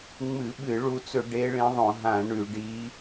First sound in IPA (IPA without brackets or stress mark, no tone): ŋ͡m